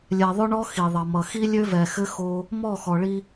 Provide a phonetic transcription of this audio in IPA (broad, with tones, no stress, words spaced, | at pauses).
lʲɛ˨ðˤʊ˦ɳɔ˦ xi˨ðˤʌ˨mʌ˨ xi˦lʲø˦vɛ˨xɘ˦ xo˦ | mɔ˦˨xɔ˨ɭi˦